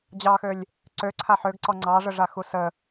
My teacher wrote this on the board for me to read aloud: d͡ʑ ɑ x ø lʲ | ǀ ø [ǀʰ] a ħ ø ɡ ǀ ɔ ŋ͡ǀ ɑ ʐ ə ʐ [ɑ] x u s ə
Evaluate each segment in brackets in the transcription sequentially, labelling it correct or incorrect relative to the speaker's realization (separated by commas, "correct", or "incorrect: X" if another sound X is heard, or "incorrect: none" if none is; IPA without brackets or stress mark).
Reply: correct, incorrect: a